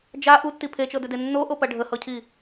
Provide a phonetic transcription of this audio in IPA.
d͡ʒ a ʔ u tː i pʰ e t͡ʃ ɤ d ʏ d e nː o ʔ o p ɐ ɖʱ ə h ɤ cʰ i

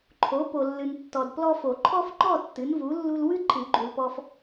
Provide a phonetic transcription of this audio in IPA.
ǃʰ o˩˥ p o˨ lː ɨ˨ n tː ɔ˨ d p l ɔ˦ f o˨˩˦ ǃʰ ɔ˦ f ŋ͡ǃ ɔ˥˩ tː ɨ˩˥ n v u˩˥ lː u˦ l w ɨ˦ ǃʰ ɨ˨˩˦ ɡ͡ǃ u˨ l p ɔ˦ f

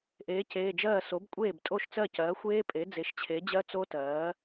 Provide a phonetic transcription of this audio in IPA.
ʔ eː˩˥ c eː˩˧˩ d͡ʒ ɜː˥˩ s o˩˥ b kʷʼ eː˥˩ b tʼ o˥˩ ʃ t͡s ɜ˥˩ c ɜː˩˥ xʷ eː˦˥ pʼ e˩˥ d͡z e˩˥ ʃ t͡ɕʰ e˩˥ d͡ʑ ɜ˦˥ t͡s o˦˥ t ɜː˩˥

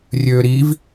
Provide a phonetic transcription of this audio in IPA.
rʲ øː ɾ i v

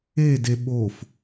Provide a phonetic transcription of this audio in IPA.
e d e ɓ o f

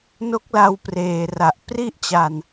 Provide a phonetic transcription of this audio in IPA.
n o˦˥ k̚ l a˧ w p r eː˨˩ r a˨˩ ʔ p r i˥˩ ʔ t͡ɕ a˧ n

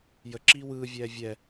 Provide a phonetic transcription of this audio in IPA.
j ə ǁ iː w ɯː vʲ ɛː vʲ ɛ

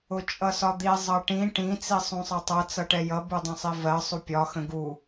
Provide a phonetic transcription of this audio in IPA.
ʊ t͡ʃʼ ʌ s ɒ d̪ i zˤ ʌ ʈ ĩ ʈ ĩ t͡s i sˤ ũ sˤ ʌ tˤ ʌ t͡s ʌ ʈ ɛ j ʌ b u dˤ ə̃ sˤ i v ɜ sˤ u pʲ ɒ x ə̃ ɡ u

